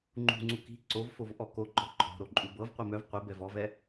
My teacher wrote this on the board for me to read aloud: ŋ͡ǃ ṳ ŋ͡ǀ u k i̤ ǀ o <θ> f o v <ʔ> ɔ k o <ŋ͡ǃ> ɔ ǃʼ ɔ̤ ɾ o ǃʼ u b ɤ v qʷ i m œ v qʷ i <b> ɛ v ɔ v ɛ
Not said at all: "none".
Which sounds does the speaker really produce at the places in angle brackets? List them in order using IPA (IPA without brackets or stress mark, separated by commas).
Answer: v, ʔ, ɡ͡ǃ, b